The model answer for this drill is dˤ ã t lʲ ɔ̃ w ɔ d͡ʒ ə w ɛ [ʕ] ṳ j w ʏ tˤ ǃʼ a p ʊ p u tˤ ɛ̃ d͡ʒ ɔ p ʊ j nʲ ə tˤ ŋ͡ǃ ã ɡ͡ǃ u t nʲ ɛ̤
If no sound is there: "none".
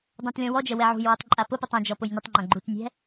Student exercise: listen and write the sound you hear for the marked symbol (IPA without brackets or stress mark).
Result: ʕ